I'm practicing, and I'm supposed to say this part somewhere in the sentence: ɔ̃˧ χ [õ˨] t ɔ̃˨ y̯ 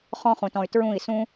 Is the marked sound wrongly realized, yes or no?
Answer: yes